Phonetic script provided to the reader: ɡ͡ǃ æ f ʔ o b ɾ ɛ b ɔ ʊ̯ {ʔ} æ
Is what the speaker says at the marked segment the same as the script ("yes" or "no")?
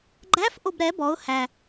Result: no